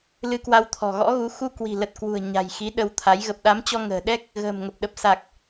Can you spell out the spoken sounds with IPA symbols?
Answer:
l ɨ˧ k w a˧ w t̪ʰ ɔ̤˨˩ ɣ ɔ̰˧˥ ɣ u˨˦ x u˧ k w i̤˨˩ l ə˨˩ t̚ k w ṳ˨˩ ə̯ ɲ a̤˨˩ j x i˨˦ ɗ ə˧ w t̪ʰ a˨˦ j ɣ ə˨˩ p̚ ɗ a˨˦ m t͡ɕ ɔ˧ ŋ ə̤ː˨˩ ɗ ɛ˦˥ k̚ | ɣ ə̤ː˨˩ m ŋ ə˨˩ p̚ ɗ ə˨˩ p̚ s a˨˩ k̚

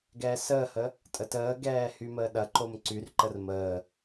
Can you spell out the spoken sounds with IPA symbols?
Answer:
ɡ ɛː s əː h ə | tʼ ə t əː ɡ ɛː h y m əː ɗ ɐ ǃ o m ǀ y r ǃ ə r m əː

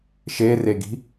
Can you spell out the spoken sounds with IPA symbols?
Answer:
ʃ e r e ɡ i̤

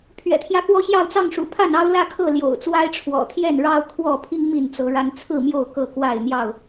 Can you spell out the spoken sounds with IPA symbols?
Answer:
pʰ ɥ ɛ̰˨˩ t̪ʰ j ä˦ k w ɔ˦ ɕ j ɑ˥˨ ʊ̯ t͡s ɑ˥˨ ŋ ʂ ṵ˨˩ pʰ a˥˨ n ɑ˦ ʊ̯ l ä˦ kʰ ɤ˥˨ l j o̰˨˩ ʊ̯ t͡s w a˦ ɪ̯ ʈ͡ʂʰ w ɔ̰˨˩ t̪ʰ j ɛ˥˨ n ɻ ɑ˦ ʊ̯ kʰ w ɔ˥˨ pʰ i˦ ŋ m i˥˨ n t͡s ɤ˨˦ ɻ a˦ n t͡sʰ ɹ̩˥˨ m j o˥˨ ʊ̯ k ɤ˥˨ k w a˥˨ ɪ̯ n̪ j ɑ˥˨ ʊ̯

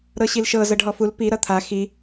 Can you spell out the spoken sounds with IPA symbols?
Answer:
ɾ ɤ ɕ i l ʃ ɤ z ɤ ɖ ɦ ɔ f u l p i ɾ ʌ t̪ʰ a x i

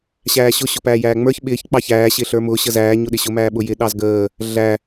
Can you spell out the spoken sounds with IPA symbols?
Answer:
ɕ æː ɕ ʊ ɕ ʊ p æː j æː ŋ͡m ə˞ ç ɓ ɪː ç k͡p ɑ ç æː ɕ ɪː ɬ ə˞ m ʊː ɕ ə z æː ɲ ʊ ɗ ɪ ɕ ʊ m æː ɓ ʊ j ɪ ɗ ɑ z ɡ əː | ɮ æ

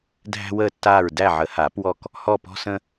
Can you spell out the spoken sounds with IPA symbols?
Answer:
dʱ æ̤˦ w əː˦˨ tː aː˦˨ ɹ d æ˦˨ ʕ ə˨˩˦ h aː˨˩˦ p w ɔ˦˨ k | h ɔ˦˨ p ɔ̤˦ s ə̃˦

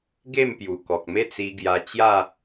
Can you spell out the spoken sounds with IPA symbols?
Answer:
ɡ e˥˧ m p j u˨˩ k ɔ˨ k̚ m e˥˧ t͡s i˧ ɡ j a˧ t͡ɕ j a˥˧

